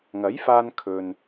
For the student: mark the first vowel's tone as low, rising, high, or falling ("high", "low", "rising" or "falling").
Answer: rising